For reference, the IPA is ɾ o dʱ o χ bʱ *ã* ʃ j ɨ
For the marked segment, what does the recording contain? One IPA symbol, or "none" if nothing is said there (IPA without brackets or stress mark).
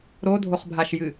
a